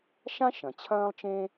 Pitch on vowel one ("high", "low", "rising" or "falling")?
high